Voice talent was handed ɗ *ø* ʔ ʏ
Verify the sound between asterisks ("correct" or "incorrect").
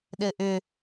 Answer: incorrect